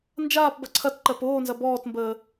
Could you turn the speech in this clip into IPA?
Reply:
n d͡ʒ aː p b ɐ ǀʰ ɐ t ǃ ɜ p oː n z ɐ b ɔː t m b əː

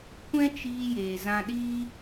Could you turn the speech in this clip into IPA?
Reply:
kʷ ɛ̃˦ t͡ʃ iː˧ j eː˨ z ã˧ ɗ iː˦

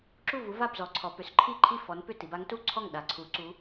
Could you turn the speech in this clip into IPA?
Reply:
ǁ u˥˩ v u˨˥ v a˥˩ b z ɔ˩˧ ǀʰ ɔ˩˧ p ʏ˩˧ s ǃʰ i˥˩ ǃʰ i˥˩ f ɔ˨˥ n p ʏ˥˩ t i˩˧ b a˨˥ ŋ t u˥˩ ǀʰ ɔ˥˩ ŋ ɗ a˩˧ ǀʰ u˩˧ ǀ u˨˥

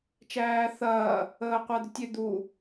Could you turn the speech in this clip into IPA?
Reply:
t͡ʃ æː θ ɐː | əː qʷ æ d̪ ʏ tʲ ʏ d̪ u

